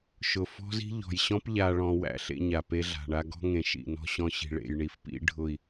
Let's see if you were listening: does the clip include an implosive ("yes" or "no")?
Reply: no